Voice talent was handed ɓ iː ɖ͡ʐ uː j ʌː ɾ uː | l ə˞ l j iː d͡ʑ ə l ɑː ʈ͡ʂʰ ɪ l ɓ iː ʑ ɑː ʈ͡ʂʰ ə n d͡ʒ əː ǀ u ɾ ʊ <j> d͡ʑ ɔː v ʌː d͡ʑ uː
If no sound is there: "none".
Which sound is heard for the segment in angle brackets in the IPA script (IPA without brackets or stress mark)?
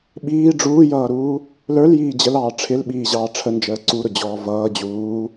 none